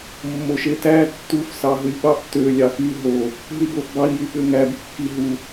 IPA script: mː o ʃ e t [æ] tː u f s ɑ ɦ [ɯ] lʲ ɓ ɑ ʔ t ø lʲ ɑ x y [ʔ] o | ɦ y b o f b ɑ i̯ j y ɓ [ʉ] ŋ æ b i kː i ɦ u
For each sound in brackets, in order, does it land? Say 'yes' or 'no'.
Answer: yes, yes, no, no

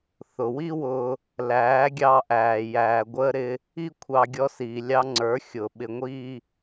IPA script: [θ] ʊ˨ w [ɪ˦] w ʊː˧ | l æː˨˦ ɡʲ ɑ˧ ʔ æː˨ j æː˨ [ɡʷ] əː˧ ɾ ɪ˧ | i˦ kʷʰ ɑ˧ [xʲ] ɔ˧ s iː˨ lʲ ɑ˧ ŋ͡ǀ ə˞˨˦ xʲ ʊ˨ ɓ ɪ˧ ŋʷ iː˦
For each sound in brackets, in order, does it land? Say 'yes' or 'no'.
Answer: yes, no, yes, no

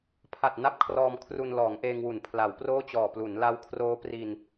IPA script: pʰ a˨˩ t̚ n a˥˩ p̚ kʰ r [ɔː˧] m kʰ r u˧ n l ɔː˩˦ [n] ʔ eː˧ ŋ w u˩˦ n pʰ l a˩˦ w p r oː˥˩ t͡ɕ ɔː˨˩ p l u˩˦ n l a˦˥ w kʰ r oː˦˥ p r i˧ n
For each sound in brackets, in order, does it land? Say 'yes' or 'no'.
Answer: yes, no

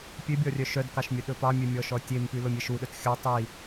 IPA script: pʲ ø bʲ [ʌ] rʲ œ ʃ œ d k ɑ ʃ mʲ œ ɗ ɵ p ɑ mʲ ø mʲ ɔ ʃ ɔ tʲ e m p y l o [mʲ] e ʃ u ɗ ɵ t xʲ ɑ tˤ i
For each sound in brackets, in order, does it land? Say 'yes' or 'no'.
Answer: no, yes

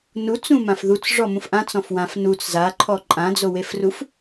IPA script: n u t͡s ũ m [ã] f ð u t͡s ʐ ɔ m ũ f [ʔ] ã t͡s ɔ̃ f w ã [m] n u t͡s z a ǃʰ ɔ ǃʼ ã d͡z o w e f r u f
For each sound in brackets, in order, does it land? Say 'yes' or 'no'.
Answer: yes, yes, no

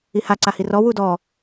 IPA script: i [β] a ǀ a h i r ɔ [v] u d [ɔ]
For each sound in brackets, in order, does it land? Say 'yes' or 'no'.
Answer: no, no, yes

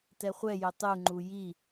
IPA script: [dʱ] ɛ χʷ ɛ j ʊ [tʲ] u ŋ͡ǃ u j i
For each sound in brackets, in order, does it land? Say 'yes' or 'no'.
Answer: no, no

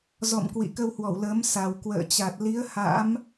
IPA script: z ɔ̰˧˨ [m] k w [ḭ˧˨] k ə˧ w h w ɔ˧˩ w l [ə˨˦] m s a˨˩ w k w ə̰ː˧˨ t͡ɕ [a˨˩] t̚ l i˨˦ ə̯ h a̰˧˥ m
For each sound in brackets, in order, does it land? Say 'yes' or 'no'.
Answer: yes, yes, yes, yes

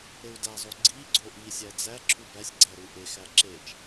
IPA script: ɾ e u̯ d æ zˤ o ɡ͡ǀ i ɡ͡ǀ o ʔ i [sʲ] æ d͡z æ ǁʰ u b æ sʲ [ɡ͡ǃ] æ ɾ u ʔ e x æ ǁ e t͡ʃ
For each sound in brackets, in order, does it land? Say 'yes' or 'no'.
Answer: yes, no

